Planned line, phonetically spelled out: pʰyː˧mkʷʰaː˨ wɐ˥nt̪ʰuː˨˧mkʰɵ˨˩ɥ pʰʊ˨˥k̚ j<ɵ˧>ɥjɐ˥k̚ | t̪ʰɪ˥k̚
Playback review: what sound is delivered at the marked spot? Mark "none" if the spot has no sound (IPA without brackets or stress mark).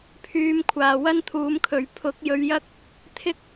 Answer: ɵ˧